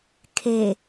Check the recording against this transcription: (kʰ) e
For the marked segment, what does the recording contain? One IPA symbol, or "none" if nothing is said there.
kʰ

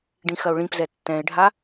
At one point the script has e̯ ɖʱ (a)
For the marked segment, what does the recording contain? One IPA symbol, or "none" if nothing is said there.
a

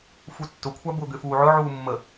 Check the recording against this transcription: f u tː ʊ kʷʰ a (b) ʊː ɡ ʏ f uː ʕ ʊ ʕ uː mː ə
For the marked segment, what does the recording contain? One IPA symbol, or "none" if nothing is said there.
b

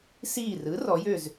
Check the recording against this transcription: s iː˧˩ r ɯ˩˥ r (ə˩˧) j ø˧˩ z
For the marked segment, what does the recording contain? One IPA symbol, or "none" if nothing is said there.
ɔ˩˧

